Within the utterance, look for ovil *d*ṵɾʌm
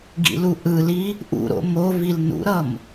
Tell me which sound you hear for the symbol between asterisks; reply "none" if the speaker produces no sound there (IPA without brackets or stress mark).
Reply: n